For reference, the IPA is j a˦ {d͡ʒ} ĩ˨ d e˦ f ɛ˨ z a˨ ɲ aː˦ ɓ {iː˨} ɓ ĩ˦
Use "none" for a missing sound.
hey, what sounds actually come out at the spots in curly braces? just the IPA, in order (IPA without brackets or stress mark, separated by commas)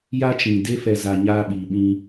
t͡ʃ, iː˨